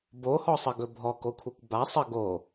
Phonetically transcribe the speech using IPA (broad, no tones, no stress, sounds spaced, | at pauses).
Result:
b o h ɔ sˤ ə ɡ ɵ bʱ ɔ k o kʷʰ ɘ kʷ b a sˤ ə ɡ o